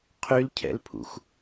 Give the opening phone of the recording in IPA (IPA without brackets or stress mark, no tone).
qʰ